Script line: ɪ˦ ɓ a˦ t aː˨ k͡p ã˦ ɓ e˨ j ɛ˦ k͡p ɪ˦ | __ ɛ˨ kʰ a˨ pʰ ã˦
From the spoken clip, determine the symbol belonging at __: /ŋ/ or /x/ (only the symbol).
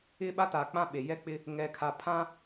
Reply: ŋ